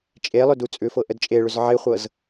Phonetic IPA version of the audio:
t͡ʃʼ e lˠ ʏ d u t͡sʼ ʏ f ɤ ʔ ə d t͡ʃʼ e ɭ ʏ z ʕ e χʷ ɤ z

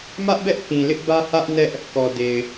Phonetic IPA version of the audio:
m ä˦ ʔ b ɛ˦ ʔ k ĩ˨ l ɪ˦ ʔ b ä˦ h ä˦ ʔ n ɛ˦ ʔ | k ɔ˨ d e˨ ɪ̯

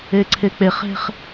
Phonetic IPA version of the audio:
e ǀʰ e k͡p e χ e̤ χ

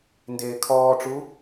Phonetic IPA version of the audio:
n d eː kʰ ɔː ʈ͡ʂ u

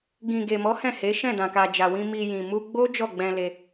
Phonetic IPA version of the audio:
ɡ ĩ˨ ɡ e˨ m ɔ˨˦ h ɛ̃˦˨ h e˨˦ ʃ ɛ̃˦˨ d ã˨ k a˨ d͡ʒ a˨ w ĩ˧ m i˨ j ĩ˨ m u˧ ɡ͡b o˦ d͡ʒ ɔ˦˨ ɡ͡b ɛ̃˧ l e˧

